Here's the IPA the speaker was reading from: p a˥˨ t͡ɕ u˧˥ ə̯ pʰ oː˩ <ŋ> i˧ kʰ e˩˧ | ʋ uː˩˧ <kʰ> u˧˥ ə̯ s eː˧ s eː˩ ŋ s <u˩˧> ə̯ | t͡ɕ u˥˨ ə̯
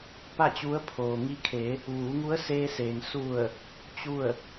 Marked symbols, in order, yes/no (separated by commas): yes, no, no